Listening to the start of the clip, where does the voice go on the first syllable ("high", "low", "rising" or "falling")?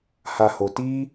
high